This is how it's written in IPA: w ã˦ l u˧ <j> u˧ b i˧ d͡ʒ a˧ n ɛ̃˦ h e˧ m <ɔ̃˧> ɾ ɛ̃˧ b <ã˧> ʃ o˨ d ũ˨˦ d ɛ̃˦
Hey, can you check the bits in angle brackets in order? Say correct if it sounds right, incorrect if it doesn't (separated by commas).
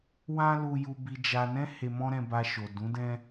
correct, incorrect, incorrect